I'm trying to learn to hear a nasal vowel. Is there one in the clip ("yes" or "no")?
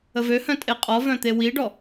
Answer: yes